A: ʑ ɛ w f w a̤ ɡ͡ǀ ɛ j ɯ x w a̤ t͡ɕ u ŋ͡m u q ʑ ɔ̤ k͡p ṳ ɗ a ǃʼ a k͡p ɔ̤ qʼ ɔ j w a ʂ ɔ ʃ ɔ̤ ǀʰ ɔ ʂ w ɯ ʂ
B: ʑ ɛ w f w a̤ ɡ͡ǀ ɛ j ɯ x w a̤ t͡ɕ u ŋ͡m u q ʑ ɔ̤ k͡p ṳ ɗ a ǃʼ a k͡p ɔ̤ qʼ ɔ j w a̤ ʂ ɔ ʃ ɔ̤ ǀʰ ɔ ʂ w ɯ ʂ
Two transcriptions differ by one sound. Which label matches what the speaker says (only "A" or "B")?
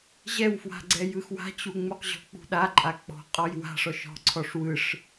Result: B